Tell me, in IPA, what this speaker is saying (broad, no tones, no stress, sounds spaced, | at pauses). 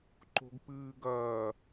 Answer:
ǃ o̤ ɡ p ɨː ɡ ɐː